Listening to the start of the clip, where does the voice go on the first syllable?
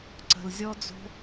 low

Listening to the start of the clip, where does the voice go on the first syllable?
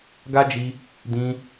high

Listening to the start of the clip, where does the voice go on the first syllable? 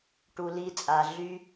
low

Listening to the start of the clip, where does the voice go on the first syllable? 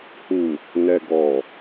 low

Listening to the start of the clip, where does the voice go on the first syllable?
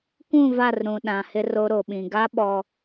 falling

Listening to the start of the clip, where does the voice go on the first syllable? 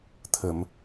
low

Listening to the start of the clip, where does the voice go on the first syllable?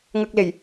low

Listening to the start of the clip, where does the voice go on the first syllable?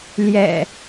low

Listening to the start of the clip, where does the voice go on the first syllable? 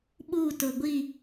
falling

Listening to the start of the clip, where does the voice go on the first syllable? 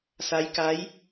rising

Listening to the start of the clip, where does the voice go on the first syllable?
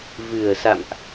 low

